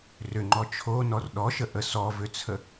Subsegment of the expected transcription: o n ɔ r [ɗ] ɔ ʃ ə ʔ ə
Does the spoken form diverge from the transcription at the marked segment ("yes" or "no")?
no